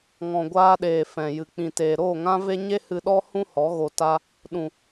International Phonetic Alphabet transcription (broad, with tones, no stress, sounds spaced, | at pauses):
ŋ ɔ̃˨ ɡʷ aː˧ ɗ eː˨ f ɛ̃˨ j ɨ˨ k͡p ĩ˨ t eː˨ ɾ oː˦˨ ŋ ã˦ v e˦ ɲ e˦ h ɨ˧ ɗ ɔ˦ h ũ˦ h ɔ˨˦ ɣ o˧ t a˦ | ɗ ũ˨